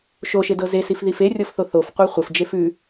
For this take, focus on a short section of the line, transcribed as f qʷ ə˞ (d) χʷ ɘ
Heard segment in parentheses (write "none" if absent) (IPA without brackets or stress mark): none